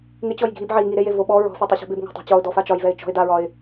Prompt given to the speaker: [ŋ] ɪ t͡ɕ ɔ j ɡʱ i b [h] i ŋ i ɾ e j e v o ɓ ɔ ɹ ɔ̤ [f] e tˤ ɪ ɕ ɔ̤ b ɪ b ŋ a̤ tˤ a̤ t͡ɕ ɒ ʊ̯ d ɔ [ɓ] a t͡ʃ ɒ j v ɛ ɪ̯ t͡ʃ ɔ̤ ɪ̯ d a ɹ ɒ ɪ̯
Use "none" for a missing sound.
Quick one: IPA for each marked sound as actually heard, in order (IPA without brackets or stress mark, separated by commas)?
ŋ, ʕ, f, f